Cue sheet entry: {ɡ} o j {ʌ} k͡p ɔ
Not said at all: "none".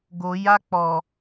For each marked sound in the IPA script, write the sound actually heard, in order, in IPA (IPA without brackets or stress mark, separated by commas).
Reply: ɡ, a